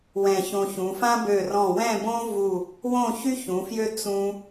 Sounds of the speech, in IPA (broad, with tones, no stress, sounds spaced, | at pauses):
w ɛ̃˧˩ ç õ˧ ç ũ˩˧ f ã˥ b ø˧˩ r ɔ̃˧˩ w ɛ̃˥˧ b õ˥ v u˧˩ | w õ˥˧ ç y˥ ç ũ˩˧ f j ø˥ t͡s ũ˧